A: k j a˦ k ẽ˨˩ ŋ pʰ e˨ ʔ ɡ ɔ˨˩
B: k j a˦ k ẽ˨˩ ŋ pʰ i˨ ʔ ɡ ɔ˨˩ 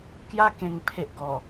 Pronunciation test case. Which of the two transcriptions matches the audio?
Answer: A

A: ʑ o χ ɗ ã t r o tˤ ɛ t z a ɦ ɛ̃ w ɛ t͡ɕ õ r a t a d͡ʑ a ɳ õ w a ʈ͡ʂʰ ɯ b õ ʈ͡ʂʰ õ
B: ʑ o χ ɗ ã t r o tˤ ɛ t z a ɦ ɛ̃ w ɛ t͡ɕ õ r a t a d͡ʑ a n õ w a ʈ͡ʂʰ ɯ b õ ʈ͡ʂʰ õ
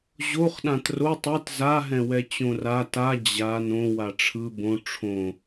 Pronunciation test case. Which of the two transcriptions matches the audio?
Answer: B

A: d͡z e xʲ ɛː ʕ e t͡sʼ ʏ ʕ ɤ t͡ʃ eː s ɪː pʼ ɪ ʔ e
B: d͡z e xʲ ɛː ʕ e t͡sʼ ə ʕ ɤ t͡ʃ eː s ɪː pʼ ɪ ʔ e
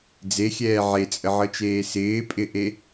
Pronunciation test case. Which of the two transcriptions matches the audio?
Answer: B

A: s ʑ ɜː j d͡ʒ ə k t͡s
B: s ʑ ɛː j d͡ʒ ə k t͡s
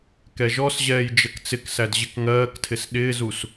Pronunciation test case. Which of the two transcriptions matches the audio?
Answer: B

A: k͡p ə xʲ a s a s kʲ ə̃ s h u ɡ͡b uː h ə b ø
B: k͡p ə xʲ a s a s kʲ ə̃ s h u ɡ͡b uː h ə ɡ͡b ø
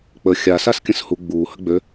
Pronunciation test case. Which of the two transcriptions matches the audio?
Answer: B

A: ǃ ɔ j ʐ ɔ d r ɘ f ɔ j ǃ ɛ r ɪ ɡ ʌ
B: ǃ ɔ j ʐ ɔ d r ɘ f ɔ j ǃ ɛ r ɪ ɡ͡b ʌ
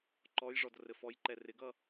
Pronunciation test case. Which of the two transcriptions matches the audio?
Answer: A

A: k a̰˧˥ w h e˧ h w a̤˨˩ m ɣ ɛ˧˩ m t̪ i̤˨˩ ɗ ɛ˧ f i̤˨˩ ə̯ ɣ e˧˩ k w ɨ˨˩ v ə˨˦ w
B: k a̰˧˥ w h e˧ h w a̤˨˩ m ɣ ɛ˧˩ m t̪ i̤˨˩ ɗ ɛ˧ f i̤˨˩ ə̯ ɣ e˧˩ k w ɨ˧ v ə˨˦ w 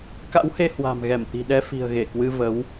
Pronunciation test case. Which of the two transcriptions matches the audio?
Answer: B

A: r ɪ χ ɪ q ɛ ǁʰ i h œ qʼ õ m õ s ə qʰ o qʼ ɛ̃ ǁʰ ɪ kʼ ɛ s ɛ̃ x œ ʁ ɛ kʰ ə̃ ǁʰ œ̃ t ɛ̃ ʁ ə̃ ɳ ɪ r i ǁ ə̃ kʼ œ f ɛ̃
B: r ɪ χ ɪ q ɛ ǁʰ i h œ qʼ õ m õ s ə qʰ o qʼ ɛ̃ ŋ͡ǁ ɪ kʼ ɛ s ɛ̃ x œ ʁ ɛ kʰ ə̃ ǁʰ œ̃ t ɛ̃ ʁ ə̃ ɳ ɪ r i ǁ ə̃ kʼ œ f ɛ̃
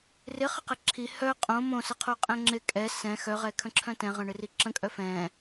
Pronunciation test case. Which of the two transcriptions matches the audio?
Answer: B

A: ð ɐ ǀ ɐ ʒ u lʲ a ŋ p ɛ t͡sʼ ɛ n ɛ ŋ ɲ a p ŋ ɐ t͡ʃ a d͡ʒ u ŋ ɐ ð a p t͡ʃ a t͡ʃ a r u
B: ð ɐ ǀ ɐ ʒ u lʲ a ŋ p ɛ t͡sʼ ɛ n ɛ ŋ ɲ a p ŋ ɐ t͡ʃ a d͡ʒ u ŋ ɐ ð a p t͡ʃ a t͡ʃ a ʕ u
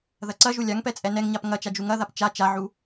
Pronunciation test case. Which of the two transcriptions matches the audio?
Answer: B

